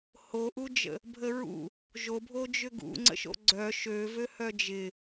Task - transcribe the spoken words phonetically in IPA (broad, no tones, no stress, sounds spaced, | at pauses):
h o ʔ u d͡ʒ ə̰ | bʱ ə ɹ ṵ | ʒ o bʱ o d͡ʒ ʏ ɡ ṵ ŋ͡ǀ ə̰ ʃ o̰ ɡ͡ǀ œ ʃ ø v ø h œ d͡ʒ ɪ